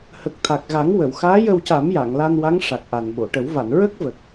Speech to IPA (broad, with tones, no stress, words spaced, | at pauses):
hə˨˩k̚ t̪ʰa˨˩k̚ɣa˨˩˦ŋwə˨˩˨wxaː˧˥ jə˧wca˨˩˦m ja˨˩˨ŋla˧nwa˧˥ŋ ʂa˨˩k̚ʔa˨˩nɓo˨˩˨ʈə˨˩˦w va˨˩˨nɹə˦˥k̚və˨˩k̚